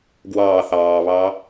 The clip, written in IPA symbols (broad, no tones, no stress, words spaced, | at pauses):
ɡwɑː θɑːβɑ